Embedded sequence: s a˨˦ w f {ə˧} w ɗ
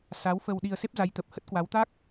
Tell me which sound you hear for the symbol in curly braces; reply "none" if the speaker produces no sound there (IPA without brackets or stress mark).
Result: ə˧